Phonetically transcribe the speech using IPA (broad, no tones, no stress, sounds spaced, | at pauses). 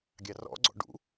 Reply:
ɡʲ ɑ r ɔ̰ ɡ͡ǀ ɔ̰ ɖ ṵ